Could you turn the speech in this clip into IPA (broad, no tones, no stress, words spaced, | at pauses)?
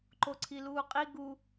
ǃoǀʰiluːqʼi ɡu